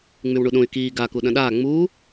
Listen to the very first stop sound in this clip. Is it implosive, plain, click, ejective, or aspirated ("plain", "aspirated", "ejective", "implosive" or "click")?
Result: implosive